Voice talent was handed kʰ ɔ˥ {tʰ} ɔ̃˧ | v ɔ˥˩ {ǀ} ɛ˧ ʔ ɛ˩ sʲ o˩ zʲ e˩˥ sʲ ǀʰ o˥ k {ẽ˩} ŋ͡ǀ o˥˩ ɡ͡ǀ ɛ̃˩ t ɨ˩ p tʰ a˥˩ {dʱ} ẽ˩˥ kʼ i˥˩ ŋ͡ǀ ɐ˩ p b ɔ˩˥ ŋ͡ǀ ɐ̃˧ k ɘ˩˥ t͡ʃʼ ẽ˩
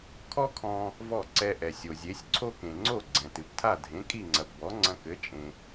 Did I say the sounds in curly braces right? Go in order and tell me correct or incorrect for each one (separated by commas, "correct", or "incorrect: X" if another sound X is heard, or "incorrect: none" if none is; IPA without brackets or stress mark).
incorrect: kʰ, correct, correct, correct